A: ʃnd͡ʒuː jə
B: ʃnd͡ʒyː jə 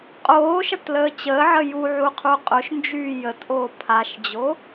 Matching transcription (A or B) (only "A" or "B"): B